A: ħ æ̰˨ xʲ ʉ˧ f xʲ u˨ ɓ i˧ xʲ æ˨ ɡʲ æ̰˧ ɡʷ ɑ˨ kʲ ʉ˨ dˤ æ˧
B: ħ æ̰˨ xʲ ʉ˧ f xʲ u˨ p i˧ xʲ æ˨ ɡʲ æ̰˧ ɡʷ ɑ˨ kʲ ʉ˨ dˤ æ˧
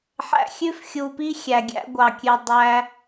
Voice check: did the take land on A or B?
B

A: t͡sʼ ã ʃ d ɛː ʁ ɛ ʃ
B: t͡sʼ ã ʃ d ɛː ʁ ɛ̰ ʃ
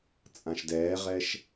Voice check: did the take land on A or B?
A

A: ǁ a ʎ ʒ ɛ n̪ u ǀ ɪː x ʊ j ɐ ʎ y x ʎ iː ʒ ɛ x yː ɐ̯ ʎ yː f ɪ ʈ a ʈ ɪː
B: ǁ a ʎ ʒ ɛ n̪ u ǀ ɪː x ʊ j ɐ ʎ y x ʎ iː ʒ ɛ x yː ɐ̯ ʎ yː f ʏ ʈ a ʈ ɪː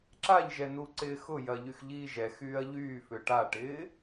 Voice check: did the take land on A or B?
B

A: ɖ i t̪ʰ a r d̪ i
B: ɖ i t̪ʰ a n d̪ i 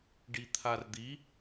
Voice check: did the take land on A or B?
A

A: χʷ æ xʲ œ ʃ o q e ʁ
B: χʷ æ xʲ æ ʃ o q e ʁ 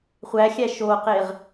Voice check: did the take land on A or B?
B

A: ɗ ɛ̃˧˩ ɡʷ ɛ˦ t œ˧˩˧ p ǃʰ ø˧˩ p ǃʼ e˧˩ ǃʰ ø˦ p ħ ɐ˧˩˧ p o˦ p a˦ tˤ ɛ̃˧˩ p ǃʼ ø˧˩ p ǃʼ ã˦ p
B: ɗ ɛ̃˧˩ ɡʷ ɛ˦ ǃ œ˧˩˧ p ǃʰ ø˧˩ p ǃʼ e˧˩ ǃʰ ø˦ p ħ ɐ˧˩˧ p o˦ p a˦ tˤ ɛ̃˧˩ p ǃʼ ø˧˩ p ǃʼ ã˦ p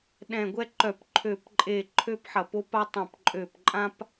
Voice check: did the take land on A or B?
B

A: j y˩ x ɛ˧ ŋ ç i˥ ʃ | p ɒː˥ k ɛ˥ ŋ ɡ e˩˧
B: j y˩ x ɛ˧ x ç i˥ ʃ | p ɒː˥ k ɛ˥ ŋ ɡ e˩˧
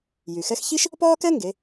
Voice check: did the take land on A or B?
B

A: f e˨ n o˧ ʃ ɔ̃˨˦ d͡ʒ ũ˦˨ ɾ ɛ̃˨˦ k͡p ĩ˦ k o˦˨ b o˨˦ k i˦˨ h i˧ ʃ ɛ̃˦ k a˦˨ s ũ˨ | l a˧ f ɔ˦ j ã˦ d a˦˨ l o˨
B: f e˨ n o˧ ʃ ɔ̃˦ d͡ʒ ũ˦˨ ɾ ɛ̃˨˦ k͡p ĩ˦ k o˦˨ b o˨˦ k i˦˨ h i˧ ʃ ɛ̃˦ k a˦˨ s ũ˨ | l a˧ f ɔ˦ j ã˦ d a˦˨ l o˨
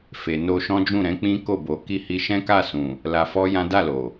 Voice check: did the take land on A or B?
B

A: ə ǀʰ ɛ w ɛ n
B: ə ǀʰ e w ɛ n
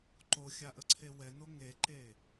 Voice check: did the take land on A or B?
B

